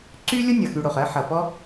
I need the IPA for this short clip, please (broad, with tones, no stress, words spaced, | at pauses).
ǀy˥ lʲo˥nʲʌ˩xy˨ɽo˩χ ɜ˦ħʌ˩ pɔ˦